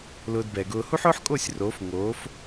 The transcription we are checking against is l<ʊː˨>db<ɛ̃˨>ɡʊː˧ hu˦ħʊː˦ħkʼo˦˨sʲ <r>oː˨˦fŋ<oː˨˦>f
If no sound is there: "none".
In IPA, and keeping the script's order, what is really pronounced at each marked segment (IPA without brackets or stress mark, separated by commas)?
ʊː˧, ɛ˨, r, oː˨˦